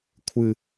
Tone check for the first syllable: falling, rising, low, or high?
low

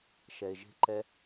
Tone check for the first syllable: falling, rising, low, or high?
low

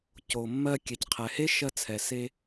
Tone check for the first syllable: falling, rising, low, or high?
low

